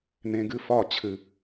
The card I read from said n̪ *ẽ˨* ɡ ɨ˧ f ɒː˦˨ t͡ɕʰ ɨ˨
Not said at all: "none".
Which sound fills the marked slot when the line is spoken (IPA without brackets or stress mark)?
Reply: ẽ˨